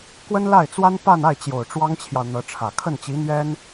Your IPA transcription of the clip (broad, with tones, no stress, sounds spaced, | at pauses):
k w ə˥ n l a˥˩ ɪ̯ t͡s w a˥ n p a˥˧ n a˥˩ ɪ̯ t͡ɕ j o˨˩ ʊ̯ ʈ͡ʂ w ɑ˥ ŋ t͡ɕʰ j ɑ˨ ʊ̯ n̪ ɤ˧˥ ʈ͡ʂʰ ä˨˩ kʰ ə˥˩ n t͡ɕ i˧˥ n̪ ɥ ɛ˥ n